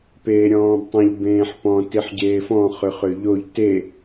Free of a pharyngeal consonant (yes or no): no